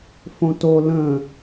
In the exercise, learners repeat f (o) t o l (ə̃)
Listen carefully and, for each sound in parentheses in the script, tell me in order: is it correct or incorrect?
incorrect: õ, correct

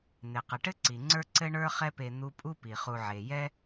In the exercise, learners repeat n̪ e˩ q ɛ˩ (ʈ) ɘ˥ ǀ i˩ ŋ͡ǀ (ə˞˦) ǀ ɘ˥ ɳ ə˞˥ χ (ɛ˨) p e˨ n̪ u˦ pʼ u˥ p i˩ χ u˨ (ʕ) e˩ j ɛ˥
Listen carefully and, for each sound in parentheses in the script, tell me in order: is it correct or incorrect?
correct, correct, incorrect: ɛ˦, correct

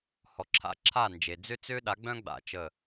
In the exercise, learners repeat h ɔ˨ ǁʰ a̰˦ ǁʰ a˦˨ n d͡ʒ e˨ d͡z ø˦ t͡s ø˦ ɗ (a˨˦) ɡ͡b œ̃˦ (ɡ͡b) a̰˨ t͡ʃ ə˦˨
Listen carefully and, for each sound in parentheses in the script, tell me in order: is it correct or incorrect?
correct, correct

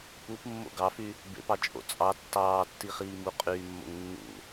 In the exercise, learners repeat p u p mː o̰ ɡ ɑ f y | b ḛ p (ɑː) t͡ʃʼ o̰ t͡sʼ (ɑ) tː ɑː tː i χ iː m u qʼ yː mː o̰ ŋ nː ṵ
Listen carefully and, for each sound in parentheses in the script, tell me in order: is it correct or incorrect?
incorrect: ɑ, correct

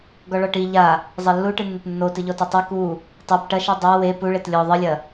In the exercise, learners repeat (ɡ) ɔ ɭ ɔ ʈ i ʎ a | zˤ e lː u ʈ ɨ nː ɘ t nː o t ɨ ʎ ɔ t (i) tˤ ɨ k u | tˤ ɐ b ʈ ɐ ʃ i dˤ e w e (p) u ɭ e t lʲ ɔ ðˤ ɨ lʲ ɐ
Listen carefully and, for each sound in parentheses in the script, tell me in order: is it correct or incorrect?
correct, correct, correct

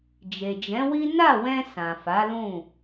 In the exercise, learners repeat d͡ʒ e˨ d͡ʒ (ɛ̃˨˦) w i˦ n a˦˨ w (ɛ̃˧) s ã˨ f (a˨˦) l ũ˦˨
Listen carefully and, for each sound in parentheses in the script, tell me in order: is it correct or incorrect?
correct, correct, correct

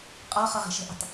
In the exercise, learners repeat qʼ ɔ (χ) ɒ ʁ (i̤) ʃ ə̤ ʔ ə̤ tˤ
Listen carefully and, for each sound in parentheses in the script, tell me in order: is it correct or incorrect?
correct, incorrect: e̤

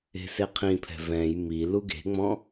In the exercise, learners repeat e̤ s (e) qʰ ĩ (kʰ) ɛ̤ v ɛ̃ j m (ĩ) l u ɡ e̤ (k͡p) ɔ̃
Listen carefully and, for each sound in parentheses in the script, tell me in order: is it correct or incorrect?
correct, incorrect: pʰ, incorrect: i, incorrect: ŋ͡m

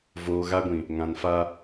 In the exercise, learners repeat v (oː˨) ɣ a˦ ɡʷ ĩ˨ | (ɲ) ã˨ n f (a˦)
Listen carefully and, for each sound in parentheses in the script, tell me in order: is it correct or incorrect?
correct, incorrect: ŋ, correct

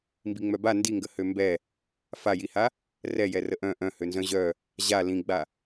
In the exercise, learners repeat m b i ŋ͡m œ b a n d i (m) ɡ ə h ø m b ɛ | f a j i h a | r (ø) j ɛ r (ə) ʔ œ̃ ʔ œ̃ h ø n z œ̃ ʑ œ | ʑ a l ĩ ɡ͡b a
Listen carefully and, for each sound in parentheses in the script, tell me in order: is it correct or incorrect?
incorrect: ŋ, incorrect: ɛ, correct

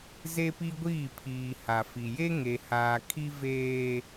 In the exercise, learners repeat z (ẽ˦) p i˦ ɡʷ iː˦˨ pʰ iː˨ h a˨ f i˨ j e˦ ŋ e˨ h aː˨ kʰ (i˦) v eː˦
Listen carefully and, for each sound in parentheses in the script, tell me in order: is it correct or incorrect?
incorrect: e˦, correct

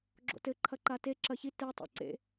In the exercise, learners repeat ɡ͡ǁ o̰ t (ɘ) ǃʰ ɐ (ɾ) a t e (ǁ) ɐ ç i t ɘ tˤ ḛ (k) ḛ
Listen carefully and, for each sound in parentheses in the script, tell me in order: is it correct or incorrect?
correct, incorrect: ǃ, correct, incorrect: ǀ

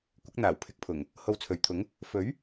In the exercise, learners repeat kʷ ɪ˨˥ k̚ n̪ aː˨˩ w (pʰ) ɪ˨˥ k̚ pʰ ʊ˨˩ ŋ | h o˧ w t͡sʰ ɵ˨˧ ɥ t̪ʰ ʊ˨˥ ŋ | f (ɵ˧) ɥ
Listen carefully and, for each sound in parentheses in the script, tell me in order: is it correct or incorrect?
correct, incorrect: ɵ˨˥

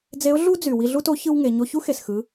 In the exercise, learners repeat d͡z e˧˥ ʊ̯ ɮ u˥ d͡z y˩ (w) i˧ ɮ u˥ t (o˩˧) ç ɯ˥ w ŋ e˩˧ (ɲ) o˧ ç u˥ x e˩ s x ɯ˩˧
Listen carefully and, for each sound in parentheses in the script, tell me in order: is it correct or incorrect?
correct, incorrect: o˧˥, correct

